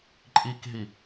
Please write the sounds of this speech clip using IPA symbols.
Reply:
ǃʼ i k ɦ i

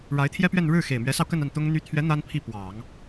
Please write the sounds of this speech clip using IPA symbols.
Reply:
ɻ a˧˥ ɪ̯ t̪ʰ j ɛ˥ p ɥ ɛ˥˧ n ɻ ɻ̩˥˩ x e˨˩ ɪ̯ m ɥ ɛ˧˥ s ɑ˧ ʊ̯ k ə˥˧ n a˥˩ n t̪ ʊ˥ ŋ n̪ y˥ t̪ʰ ɥ ɛ˧˥ n̪ a˥ n pʰ i˥˩ p w ɑ˨˩˦ ŋ

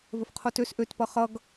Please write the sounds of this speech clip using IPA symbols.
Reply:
v ə f qʰ o t ø s ʔ ø t p ʌ χ ʌ ɡ

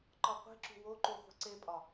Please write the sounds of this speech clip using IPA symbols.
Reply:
ǃ ɒ qʷ e̤ ǁ ṳ w o ǃ u χʷ e̤ ǀ e pʼ ɒ

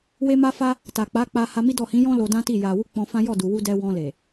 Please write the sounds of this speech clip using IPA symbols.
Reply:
w e˧ m a˧ f a˧ | t a˨ k͡p a˨˦ k͡p a˧ h a˧ m i˦ d ɔ˦˨ h ĩ˨˦ j ɔ̃˦ l o˧ d ã˦ t i˦˨ j a˨ w u˧ k͡p ɔ̃˧ f ã˦ j ɔ˦˨ d u˨ w u˧ d ɛ˧ w ɔ̃˧ l e˨

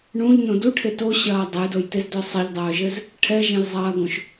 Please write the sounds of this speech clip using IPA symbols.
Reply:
ɳ ũ ʎ n õ d u ʈʰ e t o ɕ ɐː dˤ ɛ j d o j t e z d œ sˤ ə ʎ dˤ œː ʒ ɘ z | ʈʰ ɛ ʒ ẽ j zˤ ɐː ɡ õ ʃ

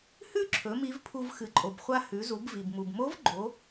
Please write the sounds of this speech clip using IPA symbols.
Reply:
h ʉ˥ ǁʰ ɵ˩˧ m i˧˥ v pʰ u˧ v x ɨ˩ ǃʼ o˩ b χʷ a˧ h ʉ˩˧ z u˩˧ b v i˩ b m u˩ b m o˧˥ v ɡ͡ǃ o˩˧

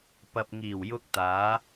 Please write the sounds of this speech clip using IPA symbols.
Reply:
p ɐ˨ p̚ ŋ iː˨˩ w j ʊ˧ k̚ t̪ aː˨˧

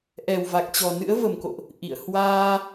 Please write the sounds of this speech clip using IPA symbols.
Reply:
ʔ ɛ˨˩ w v a˨˩ k̚ t͡ɕ ɔ˨˩ n ɨ̰˧˥ ə̯ v ə˨˩ m k o̰˧˨ ʔ | ʔ ḭ˧˨ ə̯ h w aː˧

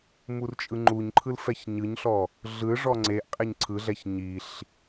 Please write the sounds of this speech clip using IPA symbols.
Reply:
m u r t͡ʃʼ ɯ ŋ͡ǃ u ɲ ǃʰ ɯ l f ɛ ç ɲ ɯ ɲ ɬ ɔ | ɮ ɯ ʐ ɔ ŋ͡ǀ e ʔ qʼ e ɲ ǀʰ ɯ ɮ ɛ ç ɲ i ɬ

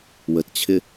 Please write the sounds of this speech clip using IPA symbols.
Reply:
w ə t t͡ɕʰ ɪ

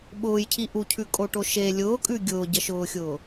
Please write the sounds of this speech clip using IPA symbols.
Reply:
ɓ ʊː j cʰ i ʔ u cʰ ʉ kʼ o ʈ o ʃ e lʲ ʊː kʼ ʉ ɡʲ ʊː ɟ ə ʃ ʊː xʲ ʊː

